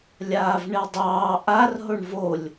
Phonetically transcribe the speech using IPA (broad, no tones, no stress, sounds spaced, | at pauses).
lʲ aː v ɳ e dˤ ɑː ʔ a r ɦ o ɳ v o lʲ